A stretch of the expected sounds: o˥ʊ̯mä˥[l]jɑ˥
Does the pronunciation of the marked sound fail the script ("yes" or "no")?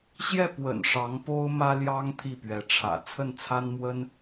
no